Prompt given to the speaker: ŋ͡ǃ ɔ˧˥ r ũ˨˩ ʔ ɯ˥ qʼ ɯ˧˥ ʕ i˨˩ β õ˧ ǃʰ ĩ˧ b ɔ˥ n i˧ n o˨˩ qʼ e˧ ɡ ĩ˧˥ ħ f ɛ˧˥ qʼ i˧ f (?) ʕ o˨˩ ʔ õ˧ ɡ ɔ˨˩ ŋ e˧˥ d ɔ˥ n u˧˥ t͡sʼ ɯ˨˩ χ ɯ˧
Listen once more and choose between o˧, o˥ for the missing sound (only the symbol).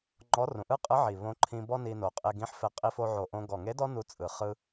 o˧